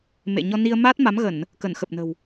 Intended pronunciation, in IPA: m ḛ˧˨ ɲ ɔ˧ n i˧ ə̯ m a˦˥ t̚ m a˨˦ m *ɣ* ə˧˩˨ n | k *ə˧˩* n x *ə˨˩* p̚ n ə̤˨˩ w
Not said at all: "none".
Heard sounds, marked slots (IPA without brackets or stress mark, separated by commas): ɣ, ə˧˩, ə˨˩